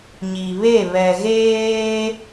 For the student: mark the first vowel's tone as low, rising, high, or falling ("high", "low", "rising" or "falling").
low